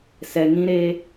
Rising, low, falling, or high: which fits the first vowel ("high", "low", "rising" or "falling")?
low